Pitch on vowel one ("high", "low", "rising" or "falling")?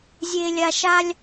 high